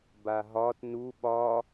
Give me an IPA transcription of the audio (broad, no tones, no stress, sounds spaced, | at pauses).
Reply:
b a ɦ ɒ t n u ɓ ɒ